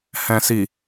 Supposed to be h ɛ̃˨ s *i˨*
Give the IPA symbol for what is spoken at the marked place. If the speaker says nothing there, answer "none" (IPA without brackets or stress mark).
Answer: i˨